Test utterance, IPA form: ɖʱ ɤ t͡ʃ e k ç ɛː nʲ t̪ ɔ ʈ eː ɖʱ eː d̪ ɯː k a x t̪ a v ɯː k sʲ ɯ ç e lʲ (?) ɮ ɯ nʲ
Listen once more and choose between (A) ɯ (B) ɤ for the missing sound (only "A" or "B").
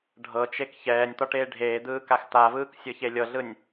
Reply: B